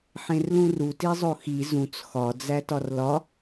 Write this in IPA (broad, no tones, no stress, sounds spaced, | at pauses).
ħ ẽ r l ũ r u t i zˤ o x i z ũ t͡s x ɒ d͡z æ t ɒ r l ɒ